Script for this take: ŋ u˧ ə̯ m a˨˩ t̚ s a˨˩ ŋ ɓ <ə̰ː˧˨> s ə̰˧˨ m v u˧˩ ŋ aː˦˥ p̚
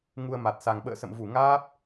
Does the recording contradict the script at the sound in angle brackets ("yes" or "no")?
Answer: no